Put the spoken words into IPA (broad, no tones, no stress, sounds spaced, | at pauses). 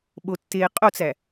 ɓ o tː eː qʼ o t͡s æ